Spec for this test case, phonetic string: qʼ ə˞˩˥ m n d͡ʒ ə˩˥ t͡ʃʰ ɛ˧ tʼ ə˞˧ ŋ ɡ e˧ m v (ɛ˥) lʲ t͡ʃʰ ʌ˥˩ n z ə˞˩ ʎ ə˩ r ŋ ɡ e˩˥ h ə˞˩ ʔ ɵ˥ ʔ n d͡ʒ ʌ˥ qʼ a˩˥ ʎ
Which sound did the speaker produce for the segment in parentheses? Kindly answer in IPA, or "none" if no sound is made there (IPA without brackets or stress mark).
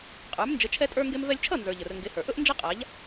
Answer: ɛ˧